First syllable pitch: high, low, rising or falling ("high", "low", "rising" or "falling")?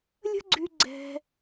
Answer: high